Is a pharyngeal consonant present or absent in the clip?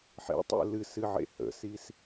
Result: present